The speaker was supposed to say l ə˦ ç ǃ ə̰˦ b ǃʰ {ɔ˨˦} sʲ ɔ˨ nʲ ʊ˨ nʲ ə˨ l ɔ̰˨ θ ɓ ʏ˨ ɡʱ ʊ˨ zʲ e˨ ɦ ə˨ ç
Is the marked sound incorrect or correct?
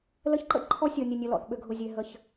incorrect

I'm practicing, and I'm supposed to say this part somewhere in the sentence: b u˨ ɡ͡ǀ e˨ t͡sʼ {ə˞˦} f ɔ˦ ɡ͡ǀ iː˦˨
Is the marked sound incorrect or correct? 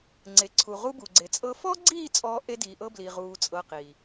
incorrect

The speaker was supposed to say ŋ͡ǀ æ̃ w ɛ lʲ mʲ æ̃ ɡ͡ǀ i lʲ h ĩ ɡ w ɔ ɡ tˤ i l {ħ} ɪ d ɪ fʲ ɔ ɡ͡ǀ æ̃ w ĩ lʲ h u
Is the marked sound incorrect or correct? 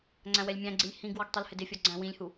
incorrect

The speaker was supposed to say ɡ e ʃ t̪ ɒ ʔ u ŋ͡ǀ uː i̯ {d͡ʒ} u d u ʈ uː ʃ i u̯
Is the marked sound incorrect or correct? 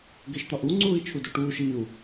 incorrect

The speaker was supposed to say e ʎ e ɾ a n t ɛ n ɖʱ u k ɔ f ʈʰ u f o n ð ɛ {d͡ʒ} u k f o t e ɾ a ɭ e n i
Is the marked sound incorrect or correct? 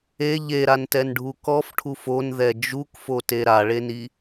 correct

